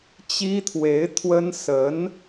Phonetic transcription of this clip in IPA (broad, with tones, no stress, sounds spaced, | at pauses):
t͡ɕ i˥ t̪ʰ w e˧˥ ɪ̯ t̪ʰ w ə˥ n s ə˧˥ n